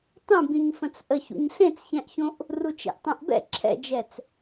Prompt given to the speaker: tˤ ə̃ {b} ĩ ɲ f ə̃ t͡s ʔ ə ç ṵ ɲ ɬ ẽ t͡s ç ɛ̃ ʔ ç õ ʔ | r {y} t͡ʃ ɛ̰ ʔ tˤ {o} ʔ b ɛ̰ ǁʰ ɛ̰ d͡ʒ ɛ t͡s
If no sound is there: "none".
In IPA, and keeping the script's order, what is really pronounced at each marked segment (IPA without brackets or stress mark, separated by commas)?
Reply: b, u, õ